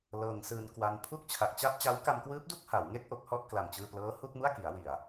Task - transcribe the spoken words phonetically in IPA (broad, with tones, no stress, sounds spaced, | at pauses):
l ɤː˧ ŋ s ɯː˧ n k w a˧ n pʰ u˥˩ k̚ t͡ɕʰ a˨˩ k̚ t͡ɕ a˥˩ p̚ t͡ɕ a˦˥ w k a˧ m k w ɯː˦˥ p̚ d u˥˩ k̚ h a˩˦ w ŋ e˥˩ k̚ ʔ o˦˥ k̚ h ɔ˦˥ ʔ k l a˨˩ m t͡ɕ ɯː˧ p l ɤː˦˥ h u˥˩ k̚ m u˥˩ a̯ k i˩˦ a̯ w i˨˩ a̯